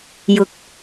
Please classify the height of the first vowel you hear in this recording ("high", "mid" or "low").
high